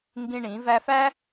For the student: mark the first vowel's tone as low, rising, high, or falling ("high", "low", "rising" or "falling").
high